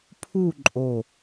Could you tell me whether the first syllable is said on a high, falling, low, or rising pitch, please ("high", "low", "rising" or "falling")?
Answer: falling